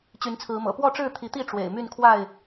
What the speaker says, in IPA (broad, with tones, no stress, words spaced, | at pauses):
t͡ɕy˨˦nt͡sʰɹ̩˨˦mɤ̰˨˩ pwɔ˥˨ʈ͡ʂɻ̩˥˨ t̪ʰi˨˦t̪i˥˨ ʈ͡ʂwḛ˨˩ɪ̯ my˥˨nkʰwa˥˨ɪ̯